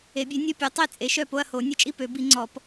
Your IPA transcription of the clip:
e˨˩˦ bʲ ø˨˥ nʲ ɔ˥˧ pʲ o˨˥ tˤ e˥˩ t͡sʼ e˨˥ ʃ œ˥˩ p o˥˧ ɐ̯ h o˨˩˦ nʲ ə˥˩ t͡ʃʼ i˥˧ p ø˨˩˦ b i˨˩˦ ŋ͡ǀ ɔ˨˩˦ p

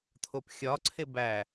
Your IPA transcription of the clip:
tʰ o p xʲ ɒ ǀʰ e b æ

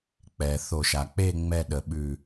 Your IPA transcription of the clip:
k͡p ɛ˩ θ o˨˩˦ ʃ a˩ k͡p e˥˧ ŋ͡m ɛ˥˧ ɗ ə˨˩˦ ɓ ʉ˧˩

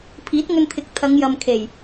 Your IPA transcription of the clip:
pʰ iː˨˥ t̚ ŋ ɵ˧ n t̪ʰ ɪ˨˥ k̚ t̪ʰ ɐ˨˧ ŋ j ɐ˨ m kʰ e˨˩ j

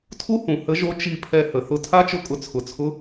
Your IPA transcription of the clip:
tʰ u˥ h ũ˩ h ə˧˥ ʒ o˧˥ t͡ʃ i˧ pʰ ɛ˧ h ə˩ θ ʊ˧ tʰ a˥ t͡ʃ ʊ˧˥ kʼ ʊ˩˧ t͡sʰ ʊ˩ t͡sʰ ʊ˧˥

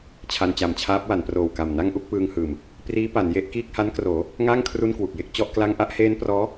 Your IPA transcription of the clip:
t͡ɕʰ a˧ n t͡ɕ a˨˩ m t͡ɕʰ aː˦˥ p̚ w a˩˦ n p r oː˨˩ w k a˨˩ m n a˥˩ ŋ ʔ u˥˩ k̚ p ɯː˧ ŋ h ɯː˨˩ m | p r iː˦˥ p a˩˦ n j e˦˥ ʔ k iː˥˩ k̚ h a˦˥ n k r oː˩˦ | ŋ aː˥˩ ŋ kʰ r u˥˩ n k w u˨˩ k̚ j e˥˩ k̚ t͡ɕ ɔ˥˩ ʔ k l a˥˩ ŋ ʔ a˥˩ ʔ h eː˦˥ n p r ɔː˦˥

